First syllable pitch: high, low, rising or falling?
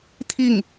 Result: falling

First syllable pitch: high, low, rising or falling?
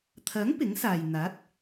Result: rising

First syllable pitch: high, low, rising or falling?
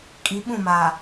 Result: rising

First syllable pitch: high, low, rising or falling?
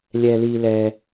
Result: low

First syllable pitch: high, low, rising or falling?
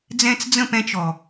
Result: high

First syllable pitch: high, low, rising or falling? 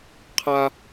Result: high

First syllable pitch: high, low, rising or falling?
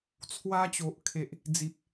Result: high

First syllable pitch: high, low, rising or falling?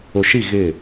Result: low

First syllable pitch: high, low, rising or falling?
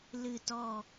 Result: falling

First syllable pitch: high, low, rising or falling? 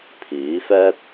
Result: rising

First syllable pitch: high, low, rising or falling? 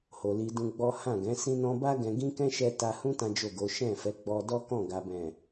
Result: low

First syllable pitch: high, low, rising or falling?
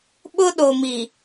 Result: high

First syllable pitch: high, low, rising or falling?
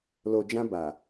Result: low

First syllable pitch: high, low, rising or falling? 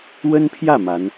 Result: high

